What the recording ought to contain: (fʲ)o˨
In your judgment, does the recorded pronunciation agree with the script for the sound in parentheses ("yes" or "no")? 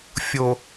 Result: yes